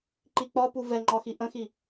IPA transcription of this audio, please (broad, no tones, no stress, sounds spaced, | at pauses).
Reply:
ǃ i k͡p ɒ p u v ɛ ŋ͡ǃ ɒ x i ʔ ə̃ x i